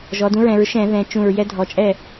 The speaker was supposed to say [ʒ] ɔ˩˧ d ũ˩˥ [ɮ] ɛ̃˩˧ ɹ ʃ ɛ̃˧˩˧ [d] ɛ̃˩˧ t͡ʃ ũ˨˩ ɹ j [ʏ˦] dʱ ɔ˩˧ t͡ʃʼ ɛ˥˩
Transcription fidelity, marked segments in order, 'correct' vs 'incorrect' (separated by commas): correct, incorrect, incorrect, incorrect